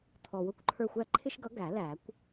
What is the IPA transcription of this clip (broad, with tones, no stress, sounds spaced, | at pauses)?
t̪ʰ ɔ˨ w ʊ˦ kʷ ǃʰ ə˞˦˨ xʷ æ˦ ǃʰ ɪ˦ ʃ ɡ ʌ˨˥ ɡ æ˨˩˦ l æ˨˩˦ kʷ